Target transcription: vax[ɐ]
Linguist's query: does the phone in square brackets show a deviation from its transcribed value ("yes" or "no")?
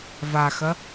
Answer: no